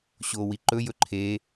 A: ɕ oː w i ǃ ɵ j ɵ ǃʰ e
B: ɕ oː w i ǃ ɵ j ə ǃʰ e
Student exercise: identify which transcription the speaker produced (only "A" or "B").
A